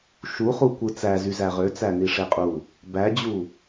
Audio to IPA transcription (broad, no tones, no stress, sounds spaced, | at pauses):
ʃ u χ u kʷ ɯ t͡s æ z y z æ ʁ ø t͡s æ n i ʂ e qʼ u | b æ d͡ʑ u